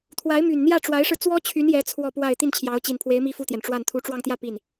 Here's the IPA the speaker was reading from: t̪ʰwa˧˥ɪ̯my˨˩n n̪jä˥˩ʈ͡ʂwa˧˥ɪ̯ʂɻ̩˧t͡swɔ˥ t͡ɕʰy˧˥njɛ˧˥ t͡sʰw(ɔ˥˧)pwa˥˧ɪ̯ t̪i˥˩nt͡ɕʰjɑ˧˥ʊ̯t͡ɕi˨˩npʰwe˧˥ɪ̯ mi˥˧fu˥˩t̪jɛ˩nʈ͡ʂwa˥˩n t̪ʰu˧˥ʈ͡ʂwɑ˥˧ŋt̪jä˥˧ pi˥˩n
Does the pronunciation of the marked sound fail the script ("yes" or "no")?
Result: no